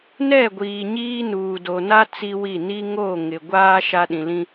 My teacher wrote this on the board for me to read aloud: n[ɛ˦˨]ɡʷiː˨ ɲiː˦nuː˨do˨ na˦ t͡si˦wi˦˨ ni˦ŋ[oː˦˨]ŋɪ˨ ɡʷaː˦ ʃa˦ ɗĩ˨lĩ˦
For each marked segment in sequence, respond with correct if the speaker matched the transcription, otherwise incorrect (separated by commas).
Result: correct, correct